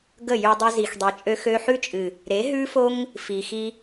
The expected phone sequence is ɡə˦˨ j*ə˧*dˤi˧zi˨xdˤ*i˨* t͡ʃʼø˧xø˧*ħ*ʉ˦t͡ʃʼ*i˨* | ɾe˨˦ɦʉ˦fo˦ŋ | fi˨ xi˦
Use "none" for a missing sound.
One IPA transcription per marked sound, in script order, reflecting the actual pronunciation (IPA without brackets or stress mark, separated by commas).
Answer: ʉ˧, i˨, ħ, ɨ˨